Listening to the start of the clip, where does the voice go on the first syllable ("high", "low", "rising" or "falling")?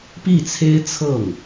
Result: falling